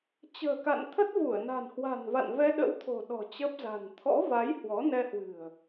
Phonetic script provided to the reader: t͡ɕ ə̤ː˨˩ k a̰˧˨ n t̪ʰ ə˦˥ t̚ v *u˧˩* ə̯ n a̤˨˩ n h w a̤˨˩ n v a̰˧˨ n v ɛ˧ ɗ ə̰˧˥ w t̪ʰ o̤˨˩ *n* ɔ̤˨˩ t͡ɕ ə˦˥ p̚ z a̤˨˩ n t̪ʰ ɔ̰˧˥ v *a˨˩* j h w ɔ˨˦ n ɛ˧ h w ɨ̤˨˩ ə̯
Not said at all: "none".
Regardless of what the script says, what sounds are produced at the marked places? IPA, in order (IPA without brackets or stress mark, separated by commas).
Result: u˧˩, ɗ, a˨˦